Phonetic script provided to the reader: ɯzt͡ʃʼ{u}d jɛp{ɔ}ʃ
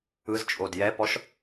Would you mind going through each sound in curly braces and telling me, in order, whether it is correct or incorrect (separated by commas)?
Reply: incorrect, correct